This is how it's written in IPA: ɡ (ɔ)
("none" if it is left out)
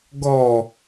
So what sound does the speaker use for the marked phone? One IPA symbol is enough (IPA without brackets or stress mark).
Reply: ɔ